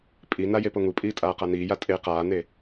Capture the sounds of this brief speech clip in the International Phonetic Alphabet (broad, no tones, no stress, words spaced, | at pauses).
pʼina jepoŋupʼiː tʼaːqaniːja tʼe qaːne